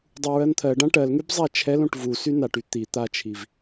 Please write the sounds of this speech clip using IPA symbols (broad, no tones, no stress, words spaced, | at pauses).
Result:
dˤuɹɜnt̪ʰɜɖã ʈɜlŋyb zˤat͡ʃʰɛlõʈ vusy naʈy t̪i t̪at͡ʃʰiv